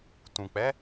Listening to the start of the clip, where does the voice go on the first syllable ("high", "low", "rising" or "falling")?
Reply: low